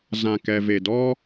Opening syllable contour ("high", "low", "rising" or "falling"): low